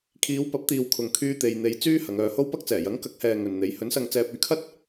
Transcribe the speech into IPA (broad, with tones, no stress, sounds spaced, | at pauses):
kʰ iː˨˧ w p ɐ˨˥ p̚ t̪ iː˨ w kʰ ʊ˨ ŋ kʰ yː˧ t̪ e˧ j n̪ e˧ j t͡s yː˥ h ɐ˨˧ ŋ œː˧ h o˥ w p ɐ˥ k̚ t͡s ɛː˨˩ j ɐ˨˥ ŋ k ɐ˨˥ k̚ h ɛː˨ ŋ ɵ˨ n n̪ e˨˥ j h ɵ˨˥ n s ɐ˧ ŋ t͡s ɛː˧ p̚ ɵ˧ ɥ kʰ ɐ˥ t̚